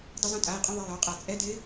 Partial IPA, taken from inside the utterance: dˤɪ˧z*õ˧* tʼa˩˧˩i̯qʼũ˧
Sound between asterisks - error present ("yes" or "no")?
no